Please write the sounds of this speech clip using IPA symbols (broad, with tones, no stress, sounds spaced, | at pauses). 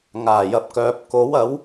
ŋ aː˨˩ j ɐ˨ p̚ k œː˨ p̚ k o˨˥ w ɐ˨˥ w